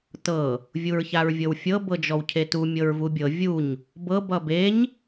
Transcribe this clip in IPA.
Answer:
t ɤ | vʲ u ɹ ç a ɹ vʲ ɤ w fʲ ɤ b ɤ d͡ʒ ɔ w cʰ e t u mʲ ɤ ɹ v u bʲ ɤ vʲ u ɲ | b ɤ b ʌ b e ɲ

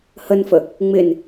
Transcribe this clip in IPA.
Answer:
h ə n f ə | ŋ͡m ɪ n

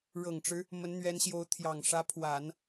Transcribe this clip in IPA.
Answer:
ɻ ɤ˨˩ ŋ ʈ͡ʂ ɻ̩˦ | m ə˧˥ n n̪ ɥ ɛ˧˥ n ɕ j o˧˥ ʊ̯ t̪ʰ j ɑ˨˩ ŋ ʂ ä˧˥ pʰ w a˨˩˦ n

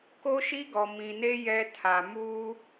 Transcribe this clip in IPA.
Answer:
k o˦ ʃ i˦ ɡ ɔ˨ m ĩ˨ n e˦ j ɛ˦ tʰ a˨ m uː˦

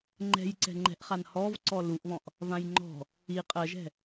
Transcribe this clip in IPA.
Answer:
ŋ͡ǃ ɛ̤ j ǀ ɛ̤ ŋ͡ǃ ɛ̤ ʔ χ a n h ɔ v ǀ ɔ l u ʔ β ɔ̃ ʔ | v ã j ŋ͡ǃ ɔ̤ | i qʼ ɜ ʒ ɛ̤

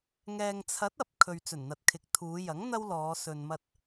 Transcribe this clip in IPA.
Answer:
ŋ ɛː˨ ŋ t͡sʰ ɐ˨˥ t̚ ɐ˨ p̚ kʰ ɵ˨ ɥ t͡s ɵ˨˩ n n̪ ɐ˨ t̚ kʰ ɪ˨˥ k̚ t̪ʰ uː˨˧ j ɐ˨˥ ŋ n̪ ɐ˥ w l ɔː˨˧ s ɵ˨ n m ɐ˧ t̚

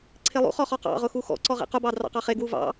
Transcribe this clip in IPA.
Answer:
ǀʰ e lˠ ṵ χ ɔ χ ɔ q ɑ̰ ʁ ʊ x u x ɔ̰ ǀ ɔ ʁ ḛ q ʊ b ɑ d r ɑ̰ q ɑ χ e ɡ w u v ɑ̰

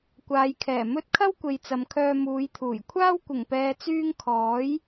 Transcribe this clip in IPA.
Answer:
kʷ aː˨ j kʰ ɛː˨˩ m ɵ˧ t̚ kʰ ɐ˥ w kʷ e˨ j t͡s ɐ˨ m kʰ œː˧ m uː˨˧ j t̪ʰ uː˨˩ j kʷʰ aː˥ w kʷ ɪ˨˩ ŋ p ɛː˨ t͡s yː˧ ŋ kʰ ɔː˨˥ j

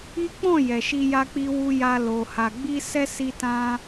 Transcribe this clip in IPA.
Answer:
i˦ k͡p ɔ̃˦˨ j ɛ˨ ʃ i˧ j a˧ k͡p i˧ w u˧ j a˧ l o˨ h a˨ ɡ͡b i˧ s ɛ˦ s i˧ t ã˧

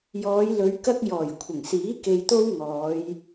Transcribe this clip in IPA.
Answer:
j ɔː˨˧ j l ɵ˨˧ ɥ k ɐ˥ k̚ j ɔː˨˩ j kʷʰ ɪ˨˩ ŋ s iː˨˥ k e˧ j t̪ o˥ w ŋ ɔː˨˧ j

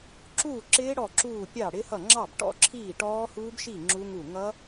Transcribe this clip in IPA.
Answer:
ǁ uː˥˩ ǁ ɪː˦˥ ɽ ɔ˥˩ ǁ uː˥˩ pʲ ɑ˥˩ ɽ ɪ˦˥ h ʌ˥˩ ŋ͡ǁ ɑ˥˩ b ʈ ɔ̰˦˥ ǁʰ iː˥˩ ʈ ɔː˦˥ h uː˦˥ b ʃ i˥˩ ŋ͡ǁ u˦˥ ŋ u˥˩ ŋ ʌ˦˥

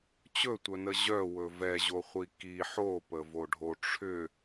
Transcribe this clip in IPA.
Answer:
t͡ɕ ɵ tʷ œ n ə ʑ œ w ɵ v ɛ ʑ o χʷ i k i ħ o p ə v o ɖʱ o ʈ͡ʂʰ ʏ

